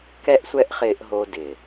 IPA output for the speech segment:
k ɛ˦ ʔ sʷ ɛ˦ ʔ χ ɪː˧ ʔ ɦ o˧ d ɪ˨

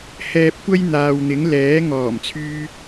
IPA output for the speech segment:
h ɛː˧ p̚ kʷ ɐ˥ j n̪ aː˨ w n̪ ɪ˨˥ ŋ l ɛː˨˥ ŋ ɔː˨˩ m t͡sʰ yː˧

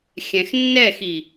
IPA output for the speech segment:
xʲ ɛ̃ x nː ɛ x i

